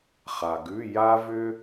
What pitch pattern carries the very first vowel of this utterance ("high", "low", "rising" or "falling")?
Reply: low